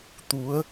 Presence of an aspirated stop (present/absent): absent